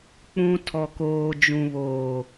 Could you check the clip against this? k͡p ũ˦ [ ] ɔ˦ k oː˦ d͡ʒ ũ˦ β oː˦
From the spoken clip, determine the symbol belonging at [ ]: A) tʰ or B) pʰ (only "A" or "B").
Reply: A